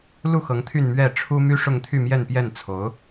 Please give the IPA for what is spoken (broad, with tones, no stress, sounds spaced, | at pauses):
l u˥˩ x ɤ˧˥ ŋ t̪ʰ y˥˧ n m ɥ ɛ˥˩ ʈ͡ʂʰ u˥ m y˥ ʂ ʊ˥˧ ŋ t̪ʰ y˥˧ m j ɛ˥˧ n p j ɛ˥˩ n t͡sʰ o˧˥ ʊ̯